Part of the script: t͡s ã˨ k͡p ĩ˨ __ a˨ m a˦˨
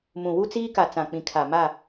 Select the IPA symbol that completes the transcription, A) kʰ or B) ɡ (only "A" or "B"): A